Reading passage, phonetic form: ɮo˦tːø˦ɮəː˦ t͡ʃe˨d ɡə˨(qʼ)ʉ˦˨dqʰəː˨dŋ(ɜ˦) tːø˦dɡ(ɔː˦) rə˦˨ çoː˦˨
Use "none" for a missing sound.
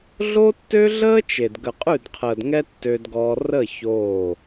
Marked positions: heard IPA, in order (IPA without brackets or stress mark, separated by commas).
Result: qʼ, ɛ˦, ɔː˦